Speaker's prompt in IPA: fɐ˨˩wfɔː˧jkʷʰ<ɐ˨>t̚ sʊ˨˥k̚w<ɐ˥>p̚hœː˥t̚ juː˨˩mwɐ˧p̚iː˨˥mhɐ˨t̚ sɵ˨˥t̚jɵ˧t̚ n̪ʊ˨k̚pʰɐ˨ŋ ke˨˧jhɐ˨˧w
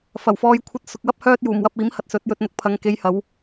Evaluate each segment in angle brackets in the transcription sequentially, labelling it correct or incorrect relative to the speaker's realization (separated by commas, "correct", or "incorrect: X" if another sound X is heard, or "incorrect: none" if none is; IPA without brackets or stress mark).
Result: incorrect: ɐ˧, correct